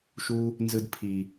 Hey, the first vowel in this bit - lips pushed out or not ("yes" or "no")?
yes